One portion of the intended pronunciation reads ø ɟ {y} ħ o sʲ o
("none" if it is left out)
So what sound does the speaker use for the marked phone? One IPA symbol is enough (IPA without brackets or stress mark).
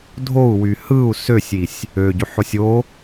y